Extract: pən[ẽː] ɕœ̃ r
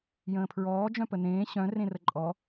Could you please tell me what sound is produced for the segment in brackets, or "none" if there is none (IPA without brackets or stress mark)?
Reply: ẽː